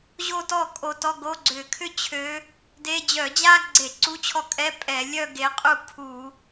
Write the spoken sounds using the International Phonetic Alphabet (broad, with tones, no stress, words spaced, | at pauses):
ʑo˥˧tɔ˥˩kʼo˨˦ tɔ˧˥˧ ɡo˧˥˧ɡ͡ǀʏ˧˩˧ kʰʏ˥˧t͡ɕʰø˨˦ | de˧˥˧ d͡ʑœ˧˩˧d͡ʑa˥ɡ͡ǀe˧˩˧ ǀu˧˥˧t͡ɕʰɔ˥˩kʼɛ˧˥˧ pʼɛ˧˩˧ lʲœ˥˧ɡe˨˦qʼu˥˩ kʰu˧˩˧